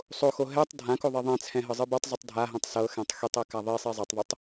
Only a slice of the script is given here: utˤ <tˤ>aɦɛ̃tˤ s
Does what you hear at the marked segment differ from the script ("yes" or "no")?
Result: yes